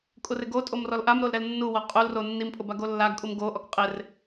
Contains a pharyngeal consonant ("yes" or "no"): no